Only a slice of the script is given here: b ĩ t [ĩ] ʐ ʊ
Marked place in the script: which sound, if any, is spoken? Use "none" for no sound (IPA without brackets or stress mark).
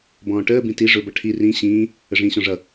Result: i